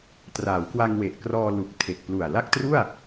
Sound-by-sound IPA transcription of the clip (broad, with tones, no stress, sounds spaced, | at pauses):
t r aː˩˦ w k w a˧ ŋ w e˨˩ ʔ k r ɔː˧ l u˨˩ k̚ tʰ e˨˩ k̚ p l u˨˩ a̯ l a˥˩ k̚ t r u˥˩ a̯